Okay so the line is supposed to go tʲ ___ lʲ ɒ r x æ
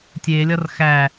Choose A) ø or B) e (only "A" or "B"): B